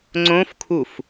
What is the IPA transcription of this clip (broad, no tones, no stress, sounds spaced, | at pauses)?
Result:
ŋ͡ǀ õ f kʰ u f